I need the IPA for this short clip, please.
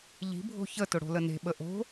ʎ i̤ bʱ o̤ ç ə t ʊ ɽ o̤ l ə n e̤ ɓ ə ʔ o̤

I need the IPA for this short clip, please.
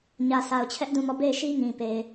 ɲ ä˨ s a˨ ʊ̯ t͡ɕʰ ɛ˦ ʔ d ũ˦˨ m ɔ˦˨ b e˦˨ ɪ̯ ʃ i˦ ŋ ĩ˨ p e˨ ɪ̯

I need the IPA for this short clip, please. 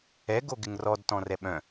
ɛ ɡ o ɡ ɪ ŋ r ɔ d t ɔ̃ r ɛ ɓ œ̃

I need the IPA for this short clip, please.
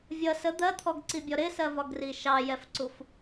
vʲ ʌ s ə d̪ ɜ t̪ʰ ɔ ɡ ǀ i bʲ ɔ ɾ ɪ s ɜ v ɒ ɡ r i ʃ ɑ j ɛ f ǀ u f

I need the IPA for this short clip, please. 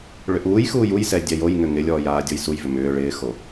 ɭ ʏ ʔ uː j x uː j u j s ɛ dʲ ɛ j o j ŋ ʏ ŋ ɪ lʲ ɔː j aː dʲ o j s u j v ʏ m ʏː ɭ ɪː x o

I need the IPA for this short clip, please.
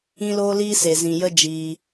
ĩ˦ l oː˦ l iː˦ s e˨ z ĩ˨ j ə˦ d͡ʒ iː˧

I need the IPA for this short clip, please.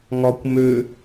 ŋ ɒ kʷ m ø

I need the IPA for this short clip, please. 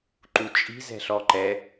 ǃ u t͡ʃʼ i̤ z ɛ̤ ɬ ɔ ǃ ɛ

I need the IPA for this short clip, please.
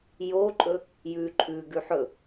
j o ǃʼ ɵ | j ʉ ǃʼ ʉ ɡ ʉ ħ ɵ

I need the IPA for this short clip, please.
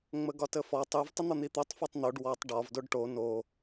ŋ͡m ə ɡ ɒ t ə f ɔ tˤ u v tˤ ə n̪ ɒ n̪ i t̪ o tˤ f o tˤ n̪ o ɖ w ɔ tˤ ɖ ɒ v d o ɖ ʈ o n o

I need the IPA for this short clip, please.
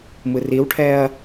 m ɯ r i w ʈʰ ɛ ɐ̯

